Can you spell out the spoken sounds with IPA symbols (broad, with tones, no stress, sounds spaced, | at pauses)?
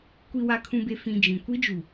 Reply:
kʷ i˨ w a˨ kʰ ũ˨ b e˨ f ĩ˨ d͡ʒ ĩ˨ kʷ i˦ d͡ʒ u˨